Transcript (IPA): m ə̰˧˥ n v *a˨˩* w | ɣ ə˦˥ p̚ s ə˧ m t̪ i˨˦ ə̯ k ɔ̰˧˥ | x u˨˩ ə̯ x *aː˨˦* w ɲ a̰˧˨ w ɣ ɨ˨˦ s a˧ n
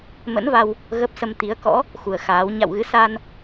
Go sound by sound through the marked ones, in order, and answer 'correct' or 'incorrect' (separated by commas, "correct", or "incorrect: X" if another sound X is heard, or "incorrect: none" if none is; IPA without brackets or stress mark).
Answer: incorrect: a˧, correct